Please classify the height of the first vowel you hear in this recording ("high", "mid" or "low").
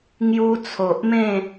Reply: high